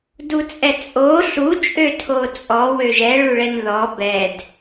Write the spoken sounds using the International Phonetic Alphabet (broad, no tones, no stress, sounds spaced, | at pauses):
d u t͡sʼ ɛ t͡sʼ o ɬ u t͡ʃʼ ø tʰ o t͡sʼ ɔ w ø ʒ ɛ ɭ u ɭ ɛ n ð ɔ b ɛ d